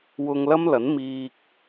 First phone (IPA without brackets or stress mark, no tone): w